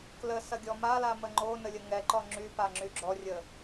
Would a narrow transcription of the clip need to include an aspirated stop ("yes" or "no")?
no